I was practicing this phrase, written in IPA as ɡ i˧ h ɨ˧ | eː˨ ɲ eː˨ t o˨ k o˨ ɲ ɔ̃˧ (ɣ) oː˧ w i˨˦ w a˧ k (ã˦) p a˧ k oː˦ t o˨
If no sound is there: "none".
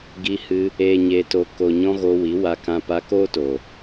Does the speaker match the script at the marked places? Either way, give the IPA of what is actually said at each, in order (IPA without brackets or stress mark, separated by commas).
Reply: ɣ, ã˧